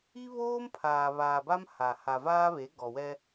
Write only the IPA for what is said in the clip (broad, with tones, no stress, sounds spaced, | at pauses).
i˦ β oː˦ m pʰ aː˨ β aː˨ b a˦ m h a˨ h a˨ v aː˦ β e˨˦ ɡ ɔ˨ w ɛ˦